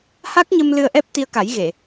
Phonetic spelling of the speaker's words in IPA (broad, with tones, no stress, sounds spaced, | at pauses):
h a˦˥ k̚ ɲ ə˧ m l ɨ˧ ə̯ ʔ ɛ˦˥ p̚ t̪ i˧ ə̯ k a˨˩˦ j ɣ e˨˩˨